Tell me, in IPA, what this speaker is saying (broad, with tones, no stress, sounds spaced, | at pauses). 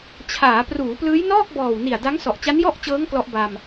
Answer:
t͡ɕʰ aː˩˦ p r uː˩˦ p l ɯː˦˥ j n ɔː˥˩ k̚ b ɔː˨˩ w n i˨˩ a̯ d a˦˥ ŋ s ɔ˨˩ ʔ t͡ɕ a˦˥ n j ɔ˥˩ ʔ t͡ɕ ɤː˦˥ ŋ k l ɔ˦˥ ʔ b a˧ m